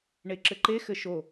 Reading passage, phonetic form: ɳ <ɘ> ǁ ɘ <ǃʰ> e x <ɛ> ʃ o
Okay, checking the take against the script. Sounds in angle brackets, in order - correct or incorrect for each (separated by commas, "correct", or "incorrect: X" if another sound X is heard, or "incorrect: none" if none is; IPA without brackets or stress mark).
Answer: incorrect: e, incorrect: ǃ, incorrect: ɘ